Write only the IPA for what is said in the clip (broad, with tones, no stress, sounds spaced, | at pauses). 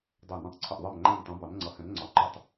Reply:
dˤ æ˧˩ n ũ˧˩ tˤ ǀʰ ɪ˧˩ ʔ ðˤ ɜ˧˩ m ŋ͡ǃ æ̃˧˩ n tˤ ũ˩˧ b ɑ˩˧ n ŋ͡ǀ ʌ˩˧ h ɛ̃˩˧ n ŋ͡ǀ ɒ˩˧ ǃ ʊ˧˩ tˤ